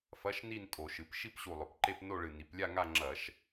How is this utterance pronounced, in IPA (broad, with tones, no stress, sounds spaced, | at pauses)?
f ɐ˧˥˧ ʃ n i˥˧ n tʼ o˧˩˧ ʃ ɨ˩˧ p ʃ i˥˧ p ɕ u˨˩ lˠ ɵ˩˧ p ǃ e˥˧ p n o˥˧ ɭ ɨ˨˩ n i˩˧ p lʲ a˥˧ ŋ a˥˧ ŋ͡ǁ ɐ˧˩˧ ʃ